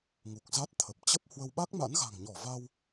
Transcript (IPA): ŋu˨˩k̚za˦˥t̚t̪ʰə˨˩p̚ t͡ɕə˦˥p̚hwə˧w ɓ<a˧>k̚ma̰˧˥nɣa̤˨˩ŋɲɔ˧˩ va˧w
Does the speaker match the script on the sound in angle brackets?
no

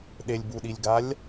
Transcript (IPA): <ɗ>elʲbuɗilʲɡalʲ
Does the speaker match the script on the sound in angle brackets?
yes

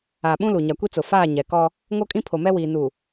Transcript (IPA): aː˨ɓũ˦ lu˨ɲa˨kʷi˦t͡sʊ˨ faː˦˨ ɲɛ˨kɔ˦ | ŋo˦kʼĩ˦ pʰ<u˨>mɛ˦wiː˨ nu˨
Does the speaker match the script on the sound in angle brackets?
no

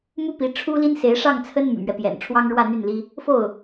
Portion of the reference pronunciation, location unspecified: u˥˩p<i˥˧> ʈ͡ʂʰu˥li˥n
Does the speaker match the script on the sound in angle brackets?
no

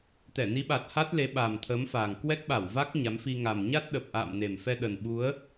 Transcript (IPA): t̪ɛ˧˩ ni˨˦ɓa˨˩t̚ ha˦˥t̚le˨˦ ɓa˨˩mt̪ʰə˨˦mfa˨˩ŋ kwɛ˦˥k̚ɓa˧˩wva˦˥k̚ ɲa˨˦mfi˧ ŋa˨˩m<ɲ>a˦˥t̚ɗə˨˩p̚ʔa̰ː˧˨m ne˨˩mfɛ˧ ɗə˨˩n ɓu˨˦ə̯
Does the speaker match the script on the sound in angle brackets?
yes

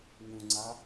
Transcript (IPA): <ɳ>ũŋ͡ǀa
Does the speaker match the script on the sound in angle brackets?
no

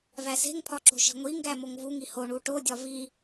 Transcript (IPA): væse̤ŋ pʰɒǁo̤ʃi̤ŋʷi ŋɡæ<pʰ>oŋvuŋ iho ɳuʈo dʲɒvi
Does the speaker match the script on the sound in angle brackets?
no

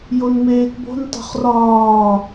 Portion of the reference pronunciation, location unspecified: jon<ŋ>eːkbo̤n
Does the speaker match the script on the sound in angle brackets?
no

